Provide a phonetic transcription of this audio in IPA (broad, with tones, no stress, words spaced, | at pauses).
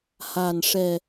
ha˨˩n ʂɛ˨˩